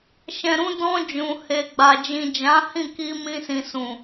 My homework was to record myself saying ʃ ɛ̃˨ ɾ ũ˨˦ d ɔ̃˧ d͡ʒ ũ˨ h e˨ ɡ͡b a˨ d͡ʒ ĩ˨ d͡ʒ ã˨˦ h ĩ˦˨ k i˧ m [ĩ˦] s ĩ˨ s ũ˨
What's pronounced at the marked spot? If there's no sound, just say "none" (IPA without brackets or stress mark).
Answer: ĩ˧